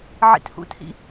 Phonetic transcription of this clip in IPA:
ʕ ḭ t h ṵ t h ḭ

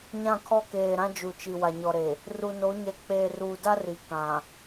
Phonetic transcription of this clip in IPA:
ɲ ã˦˨ kʰ ɔ˦ k eː˨ ɾ ã˦ d͡ʒ u˨ t͡ʃ i˨ w a˨ ɲ ɔ˨ ɾ e˨ | r u˨ n o˨˦ ɲ ɛ˨ k͡p eː˨ r uː˨ d a˦ r i˨ k ã˨

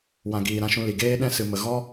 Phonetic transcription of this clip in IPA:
w ã˨ ɡ iː˨ ɾ ã˧ ʃ ũ˧ l i˨ ɡ eː˦ ɗ ɛ̃˦ s ɨ˧ m ə˧ ɣ ɔ˦

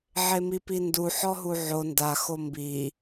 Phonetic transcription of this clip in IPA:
ʕ e m i p i n d u ħ ɔ ɦ u ʕ o n d a x o m b i

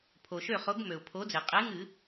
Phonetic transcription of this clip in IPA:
pʰ o˩ ʃ ø˥˩ χ o˨˥ ɡ m ø˩ ʊ̯ pʰ o˨˥ d͡z e˩ qʼ e˨˥ ŋ ɨ˧˩˧

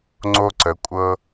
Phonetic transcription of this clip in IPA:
ŋ͡ǀ o˧ ǀ ə˩˧ kʷʼ ɤ˧

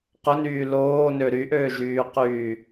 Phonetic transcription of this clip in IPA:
q ʊ n yː l oː n ø ɾ y ʔ øː ʒ yː q yː

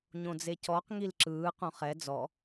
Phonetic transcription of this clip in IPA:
ɲ õ d͡z e c ɔ q ŋ i l ǁ ɯː q õ χ ɛ d͡z ɔ

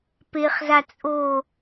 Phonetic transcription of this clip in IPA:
p e χ z a t͡sʼ o

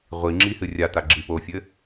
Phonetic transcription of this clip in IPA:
ʁʷ i ŋ͡ǁ i h ɨ rʲ a t a ɡ͡ǁ i p o fʲ ɘ

